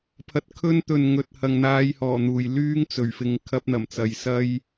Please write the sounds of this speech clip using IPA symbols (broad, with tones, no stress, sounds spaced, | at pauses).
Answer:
pʰ ɐ˨ t̚ kʰ ɵ˧ n t̪ ɵ˨ n ŋ ɵ˨ t̚ h ɐ˨ ŋ n̪ aː˧ j h ɔː˨˩ n̪ uː˨˩ j l yː˥ ŋ t͡s ɵ˨˩ ɥ f ɪ˨ ŋ kʰ ɐ˧ p̚ n̪ ɐ˨˩ m t͡s ɐ˨ j s ɐ˥ j